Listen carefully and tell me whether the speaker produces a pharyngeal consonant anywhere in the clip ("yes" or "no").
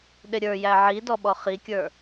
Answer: yes